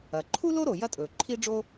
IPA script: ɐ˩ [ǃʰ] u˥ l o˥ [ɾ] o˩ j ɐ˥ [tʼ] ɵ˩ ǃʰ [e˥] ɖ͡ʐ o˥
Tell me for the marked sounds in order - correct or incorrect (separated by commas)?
correct, correct, correct, incorrect